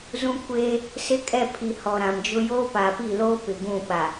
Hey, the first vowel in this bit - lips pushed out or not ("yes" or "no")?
yes